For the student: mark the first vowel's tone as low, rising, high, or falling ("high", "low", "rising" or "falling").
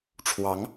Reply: rising